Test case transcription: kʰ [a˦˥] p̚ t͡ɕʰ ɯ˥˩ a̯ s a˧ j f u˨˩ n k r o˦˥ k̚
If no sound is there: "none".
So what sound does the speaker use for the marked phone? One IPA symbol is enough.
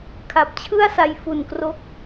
a˨˩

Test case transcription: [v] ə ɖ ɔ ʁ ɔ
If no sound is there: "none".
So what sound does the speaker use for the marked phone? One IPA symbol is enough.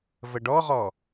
v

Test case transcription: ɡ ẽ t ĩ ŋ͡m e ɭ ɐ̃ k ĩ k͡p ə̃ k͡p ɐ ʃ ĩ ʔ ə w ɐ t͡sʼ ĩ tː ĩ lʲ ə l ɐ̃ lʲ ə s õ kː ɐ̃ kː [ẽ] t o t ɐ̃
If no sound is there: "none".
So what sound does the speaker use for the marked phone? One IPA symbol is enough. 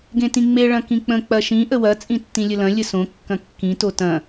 ĩ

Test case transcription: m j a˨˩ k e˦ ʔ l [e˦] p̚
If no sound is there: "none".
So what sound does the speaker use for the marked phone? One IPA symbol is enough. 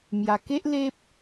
e˦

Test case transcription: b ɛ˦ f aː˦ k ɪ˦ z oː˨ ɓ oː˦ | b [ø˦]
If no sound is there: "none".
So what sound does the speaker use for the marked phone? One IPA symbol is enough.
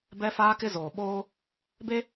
e˦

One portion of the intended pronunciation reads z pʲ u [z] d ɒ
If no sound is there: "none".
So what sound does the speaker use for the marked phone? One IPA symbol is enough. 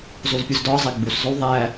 z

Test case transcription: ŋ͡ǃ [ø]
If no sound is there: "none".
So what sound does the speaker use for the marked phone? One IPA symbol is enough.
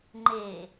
e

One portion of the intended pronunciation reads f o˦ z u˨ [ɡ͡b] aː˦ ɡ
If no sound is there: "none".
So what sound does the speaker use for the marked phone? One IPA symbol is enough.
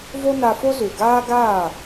ɡ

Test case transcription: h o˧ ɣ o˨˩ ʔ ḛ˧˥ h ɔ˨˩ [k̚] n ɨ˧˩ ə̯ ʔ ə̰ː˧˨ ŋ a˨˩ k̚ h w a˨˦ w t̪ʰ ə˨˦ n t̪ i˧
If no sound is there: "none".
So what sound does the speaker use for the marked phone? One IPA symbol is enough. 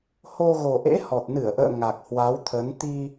t̚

